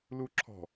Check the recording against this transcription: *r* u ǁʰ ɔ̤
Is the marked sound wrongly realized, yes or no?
yes